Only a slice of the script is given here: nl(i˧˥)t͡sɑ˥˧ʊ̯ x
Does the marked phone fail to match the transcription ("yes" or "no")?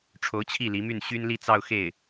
yes